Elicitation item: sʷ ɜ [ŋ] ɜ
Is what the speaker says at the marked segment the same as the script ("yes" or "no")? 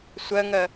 yes